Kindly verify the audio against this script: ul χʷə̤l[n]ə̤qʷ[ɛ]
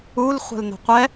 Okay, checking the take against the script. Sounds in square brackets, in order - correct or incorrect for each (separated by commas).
correct, correct